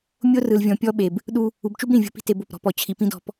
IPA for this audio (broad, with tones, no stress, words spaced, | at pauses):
mʲo˦ rɯ˨lvʲɔ̃˨ pʲɔ˦ɓe˨b | ɗu˦ | u˨bt͡ʃu˦b ɾĩ˨vʲo̤˦pi̤˦ te˨ bo˦˨pɾɔ̤˦ pɔ˨ t͡ɕʰi˨pĩ˦ dɔ̤˦p